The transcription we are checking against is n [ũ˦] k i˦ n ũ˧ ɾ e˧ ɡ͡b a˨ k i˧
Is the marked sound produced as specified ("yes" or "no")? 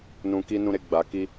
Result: no